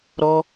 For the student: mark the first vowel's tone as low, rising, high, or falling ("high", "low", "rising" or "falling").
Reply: high